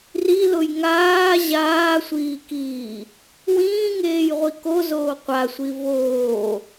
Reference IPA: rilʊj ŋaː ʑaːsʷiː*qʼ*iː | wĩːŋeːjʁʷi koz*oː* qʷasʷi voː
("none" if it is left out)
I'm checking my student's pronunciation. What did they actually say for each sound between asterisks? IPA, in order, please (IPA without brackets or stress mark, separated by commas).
k, oː